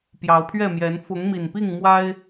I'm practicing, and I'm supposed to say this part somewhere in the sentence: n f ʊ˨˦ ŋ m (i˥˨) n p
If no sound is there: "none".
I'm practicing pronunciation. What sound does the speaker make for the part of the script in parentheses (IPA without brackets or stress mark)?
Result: i˨˩